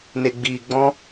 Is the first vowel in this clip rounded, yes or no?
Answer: no